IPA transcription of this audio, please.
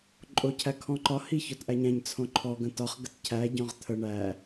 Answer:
ǃʼocʰækʰɔ̃ǃɒ hiçɔtʔæɲæ̃ɲ t͡sʰõǃʰɔ ɡə̃tɒχ ɡətcʰæ ɟɔ̃ʁt̪ʰə ɳæ

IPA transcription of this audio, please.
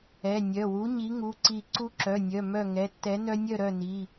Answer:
ɛ˩˧˩nʲœ˩˧˩wu˨˥ ɲi˨˥ŋu˩˧˩ǀi˧˩ ǀu˦ǁœ˩˧˩nʲœ˩˧˩ mœ˥˨ ŋɛ˩˧˩tːɛ˨˥ nœ˦nʲœ˥˨ɾœ˥˨ni˩˧˩

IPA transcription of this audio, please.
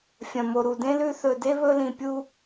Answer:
fʲɐ̃˩mo˩ ɾu˩dẽ˥lʉ˦ θɵ˨de˥βɵ˦lĩ˨ pʲu˦

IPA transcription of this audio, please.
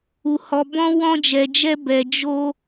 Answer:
u˧hɔ˧bɔ̃˦ wɔ̃˦d͡ʒɛ˧d͡ʒɛ˦ bɛ˧d͡ʒo˦

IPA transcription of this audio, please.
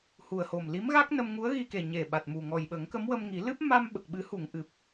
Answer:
hu˨˩ə̯ho˨˩m li˧˥mɣa˦˥k̚ nə˧mŋu˧˥ə̯ɣi˧ke˨˩ ɲe˨˩ɓa˨˩t̚mu˨˩ ŋɔ˨˩jɓə˨˩˦ŋkə˧˥m wə˧mŋi˨˩˦ lɨ˦˥p̚ ma˧mɓə˨˩k̚ɓɨ˨˩˦hu˨˩˨ŋ ʔɨ˨˩p̚

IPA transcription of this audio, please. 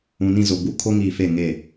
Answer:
ũ˨nĩ˦˨zo˨ ɡ͡bu˦ kʰo˦ŋiː˨fe˦˨ ŋe˦˨

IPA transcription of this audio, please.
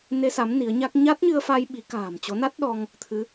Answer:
ne˧sa˨˦m ni˨˦ə̯ɲa˦˥k̚ ɲa˦˥t̚ɲɨ˧ə̯fa˧j ɓi˨˦ ka̤ː˨˩m t͡ɕo˨˦na˦˥t̚ ɗɔ˧ŋ | t̪ʰɨ˨˦

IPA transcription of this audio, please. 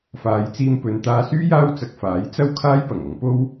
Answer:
faː˨˧jt͡siː˧mpɵ˨˧n t̪aː˧syː˥jaː˥wt͡sɐ˧k̚ faː˨˥jt͡sɐ˥w kʰaː˥jpɐ˨˩ŋɐ˨˧ŋpo˥w

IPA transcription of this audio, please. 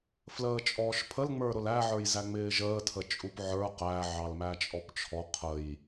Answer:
fləːt͡ʃʼɔːʃpʰəl ŋ͡mə˞ɾʊlæ ʕə˞jzæŋ͡mɪːʒəː tʰət͡ʃʼupʕə˞ qæ ʕɑlmæt͡ʃʼɔpt͡ʃʰɔ qʰəj

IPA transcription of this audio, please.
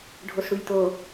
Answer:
ɖʱosɽujt̪o

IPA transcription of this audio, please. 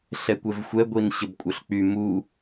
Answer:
ɬɛkʷɛvxʷɛ ɡʷinɕəbkʷʼœɬk͡py mu

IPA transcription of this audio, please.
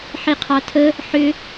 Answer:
ħiqʰɑtʰə | ħʏ

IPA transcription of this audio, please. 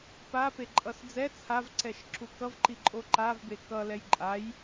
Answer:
papeǃʼʌs d͡zɛ t͡sʰavǀɛʃǁu kʌvǃiǃʼo ǃavbe kʌlɛj ǃʼaj

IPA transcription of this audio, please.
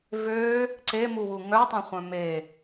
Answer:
vø | ǀemuwu ŋœtˤœ̃χʷœ̃ me

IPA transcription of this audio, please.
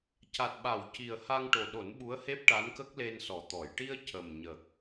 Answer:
ca˨˩t̚ɓa˨˩˨w ci˨˩ə̯ ha˧ŋʈo˨˩ɗo˨˩˦n ɓu˧˥ə̯he˦˥p̚ ʈa˧˥nkə˦˥k̚le˧n sɔ˨˩t̪ɔ˨˩˨j ʈi˧ə̯ cə˨˩mɲə˨˩k̚

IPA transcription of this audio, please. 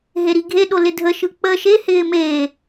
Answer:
ɦeɾiɡʱeɗo lɪdʱəʃɯ k͡pə ʃehɪː meː

